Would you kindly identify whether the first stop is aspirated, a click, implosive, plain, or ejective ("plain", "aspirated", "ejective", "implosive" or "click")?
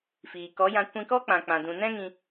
plain